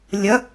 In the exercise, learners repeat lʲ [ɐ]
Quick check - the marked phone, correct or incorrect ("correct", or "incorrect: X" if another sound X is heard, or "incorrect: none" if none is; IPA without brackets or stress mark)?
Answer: correct